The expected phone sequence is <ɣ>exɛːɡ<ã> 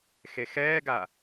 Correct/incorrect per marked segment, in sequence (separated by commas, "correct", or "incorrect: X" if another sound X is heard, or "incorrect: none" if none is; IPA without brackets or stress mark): incorrect: x, incorrect: a